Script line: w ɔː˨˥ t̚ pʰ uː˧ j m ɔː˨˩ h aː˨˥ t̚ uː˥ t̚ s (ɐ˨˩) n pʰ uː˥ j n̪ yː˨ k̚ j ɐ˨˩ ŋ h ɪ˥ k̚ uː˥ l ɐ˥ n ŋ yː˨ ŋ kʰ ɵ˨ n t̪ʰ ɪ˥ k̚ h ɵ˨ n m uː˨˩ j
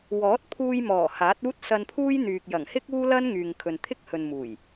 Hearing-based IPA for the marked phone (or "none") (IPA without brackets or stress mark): ɐ˧